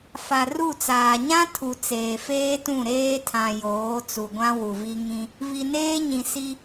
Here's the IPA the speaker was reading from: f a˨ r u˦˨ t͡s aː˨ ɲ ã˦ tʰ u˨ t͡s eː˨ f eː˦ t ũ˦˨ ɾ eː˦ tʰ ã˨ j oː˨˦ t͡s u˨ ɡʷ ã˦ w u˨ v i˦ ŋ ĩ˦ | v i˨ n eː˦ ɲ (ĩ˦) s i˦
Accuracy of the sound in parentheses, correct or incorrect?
incorrect